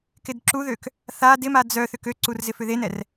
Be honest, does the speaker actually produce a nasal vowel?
no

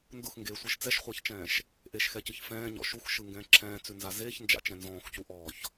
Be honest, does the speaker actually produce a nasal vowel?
yes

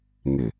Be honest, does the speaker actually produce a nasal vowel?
no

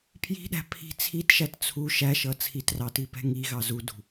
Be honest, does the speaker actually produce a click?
no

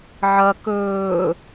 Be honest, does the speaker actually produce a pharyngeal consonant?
yes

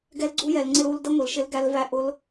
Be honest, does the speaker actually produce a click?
yes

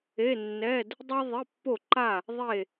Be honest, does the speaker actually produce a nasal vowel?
no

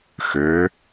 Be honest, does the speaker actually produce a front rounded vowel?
yes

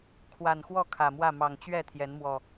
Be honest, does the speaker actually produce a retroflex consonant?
no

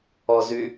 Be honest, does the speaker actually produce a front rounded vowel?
yes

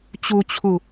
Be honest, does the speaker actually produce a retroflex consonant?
no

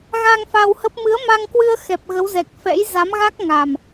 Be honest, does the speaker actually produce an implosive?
no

